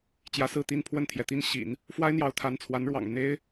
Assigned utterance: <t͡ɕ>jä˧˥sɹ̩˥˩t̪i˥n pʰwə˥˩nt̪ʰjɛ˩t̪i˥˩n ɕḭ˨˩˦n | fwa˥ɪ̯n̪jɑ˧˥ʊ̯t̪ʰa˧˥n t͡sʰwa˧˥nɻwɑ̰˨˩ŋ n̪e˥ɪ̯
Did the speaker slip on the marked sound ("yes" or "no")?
no